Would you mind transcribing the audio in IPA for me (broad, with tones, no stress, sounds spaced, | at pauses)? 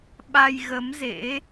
ɓ a˧ j ɣ ə˨˦ m z ḛ˧˥